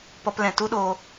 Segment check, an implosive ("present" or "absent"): present